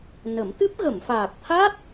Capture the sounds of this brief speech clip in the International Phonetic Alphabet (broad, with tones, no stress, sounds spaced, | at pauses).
n ə˨˩˦ m t̪ ɨ˦˥ p̚ ɣ ə˨˩˨ m f aː˨˩ k̚ t̪ʰ a˦˥ t̚